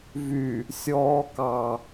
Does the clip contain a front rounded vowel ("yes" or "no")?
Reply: yes